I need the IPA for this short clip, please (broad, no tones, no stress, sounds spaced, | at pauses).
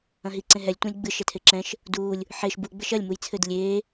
ɐ̃ ɦ i ǀ ẽ ɦ ɛ lʲ tʷ ẽ lʲ ɡ͡b ɨ ʃ ɛ tʰ e ǁ ɛ̃ ʃ | d uː lʲ | ħ e ʃ b u ɡ͡b ɘ ʃ ɐ lʲ m u j t͡sʰ ɘ d lʲ eː